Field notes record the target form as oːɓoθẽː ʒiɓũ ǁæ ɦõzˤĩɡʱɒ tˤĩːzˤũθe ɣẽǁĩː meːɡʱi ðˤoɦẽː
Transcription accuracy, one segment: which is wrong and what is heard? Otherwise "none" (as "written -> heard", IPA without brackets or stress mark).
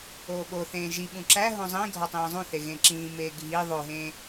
none